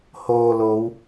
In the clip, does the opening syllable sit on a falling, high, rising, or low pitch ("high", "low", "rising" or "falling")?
low